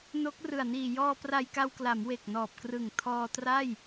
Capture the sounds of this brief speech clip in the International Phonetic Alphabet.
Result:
no˦˥k̚rɯ˨˩a̯ niː˨˩ jɔː˧ pra˧jka˧wkla˩˦m we˨˩k̚nɔː˨˩p̚krɯ˨˩ŋ tʰɔː˧ tra˥˩j

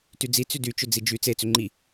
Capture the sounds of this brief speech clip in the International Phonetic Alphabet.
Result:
tyd͡zi t͡sydyt͡ʃʏ d͡zid͡ʒy t͡set͡sʏ ŋ͡ǃi

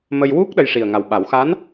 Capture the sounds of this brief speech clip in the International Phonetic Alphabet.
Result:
mə˧jwu˦˥k̚ ɗə˧jʂi˨˩ə̯ŋa˨˩wɓa˨˩˦w xa˧˥n

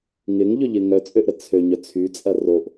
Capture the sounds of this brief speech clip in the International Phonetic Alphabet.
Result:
ŋɪŋʎʏʎɪ ŋœt͡sʼøʔɾə t͡sʰøɲœ t͡sʰyt͡sʼɐ roʔ

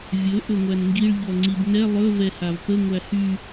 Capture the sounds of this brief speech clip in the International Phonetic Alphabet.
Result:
vʲɵ ʔɵŋʷænŋɡiɭ ʎɔŋ͡ǀibnɛ lˠɵ vɛhavpə ŋʷæhy

